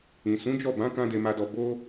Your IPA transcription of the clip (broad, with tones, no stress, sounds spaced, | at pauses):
ĩ˨ s ũ˨˦ d͡ʒ ɔ˦˨ b ã˨˦ k ã˦ d e˧ m a˧ d ɔ˧ b o˦